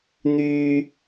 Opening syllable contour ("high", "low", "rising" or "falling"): high